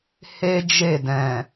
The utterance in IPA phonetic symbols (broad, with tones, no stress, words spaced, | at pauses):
he˦d͡ʒe˦˨dɛ̃˨